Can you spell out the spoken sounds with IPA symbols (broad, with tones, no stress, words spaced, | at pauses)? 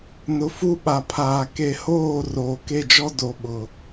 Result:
nʊ˨fu˦˨ ɓa˨pʰaː˨ ke˨hoː˦˨ roː˨ke˦˨d͡ʒɔ˦ do˨ɓʊ˨